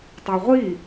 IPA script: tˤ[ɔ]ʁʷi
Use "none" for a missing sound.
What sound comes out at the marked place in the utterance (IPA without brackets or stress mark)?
o